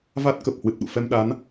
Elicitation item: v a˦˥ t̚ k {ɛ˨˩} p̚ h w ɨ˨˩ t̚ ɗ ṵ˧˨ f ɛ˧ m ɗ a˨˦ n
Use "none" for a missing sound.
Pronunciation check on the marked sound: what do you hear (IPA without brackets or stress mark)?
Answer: ə˨˩